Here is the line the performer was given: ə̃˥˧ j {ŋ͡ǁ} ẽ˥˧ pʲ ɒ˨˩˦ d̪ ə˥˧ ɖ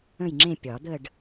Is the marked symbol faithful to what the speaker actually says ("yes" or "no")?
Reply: yes